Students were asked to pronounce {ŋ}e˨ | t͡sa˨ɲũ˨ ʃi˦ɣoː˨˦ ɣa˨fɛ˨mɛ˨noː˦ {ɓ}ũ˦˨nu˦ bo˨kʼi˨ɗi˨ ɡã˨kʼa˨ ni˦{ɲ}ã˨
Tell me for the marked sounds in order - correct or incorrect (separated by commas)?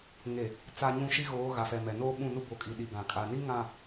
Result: correct, correct, incorrect